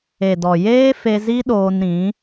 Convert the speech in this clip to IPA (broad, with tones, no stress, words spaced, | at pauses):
e˨dɔ˨ jeː˦ fe˦ zi˦ɗoː˧nɾĩ˨˦